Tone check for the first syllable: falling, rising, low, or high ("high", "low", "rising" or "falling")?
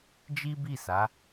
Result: high